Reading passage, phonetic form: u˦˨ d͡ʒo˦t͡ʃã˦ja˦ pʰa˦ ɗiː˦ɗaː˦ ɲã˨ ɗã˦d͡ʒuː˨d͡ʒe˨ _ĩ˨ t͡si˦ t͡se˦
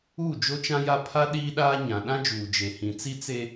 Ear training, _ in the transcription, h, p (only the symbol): h